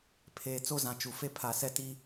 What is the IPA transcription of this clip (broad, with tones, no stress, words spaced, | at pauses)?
pʰeː˨t͡so˦zã˨ t͡ʃu˨fe˦ pʰa˨ sɛ˦ti˦